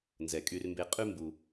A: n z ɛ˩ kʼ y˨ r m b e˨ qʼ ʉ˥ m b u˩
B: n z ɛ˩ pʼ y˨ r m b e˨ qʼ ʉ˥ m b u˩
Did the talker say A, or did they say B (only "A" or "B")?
A